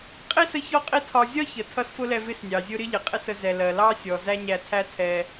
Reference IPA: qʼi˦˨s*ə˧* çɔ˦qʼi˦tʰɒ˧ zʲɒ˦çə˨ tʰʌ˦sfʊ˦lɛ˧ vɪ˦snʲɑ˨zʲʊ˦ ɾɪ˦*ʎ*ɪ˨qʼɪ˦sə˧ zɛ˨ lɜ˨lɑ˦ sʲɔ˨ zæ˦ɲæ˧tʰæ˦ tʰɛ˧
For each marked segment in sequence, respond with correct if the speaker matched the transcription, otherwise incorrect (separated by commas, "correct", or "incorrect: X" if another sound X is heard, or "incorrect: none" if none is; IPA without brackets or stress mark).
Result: correct, correct